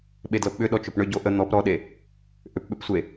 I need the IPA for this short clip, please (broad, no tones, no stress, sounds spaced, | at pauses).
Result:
ɓ e d l ɤ p ɓ ʏ ɗ ɔ t͡ʃ ʊ p ɳ ʏ ɟ o ʔ ə n̪ ɔ p ɾ ɔ ɗ e | ʔ ʏ p ɓ ʏ p sʷ e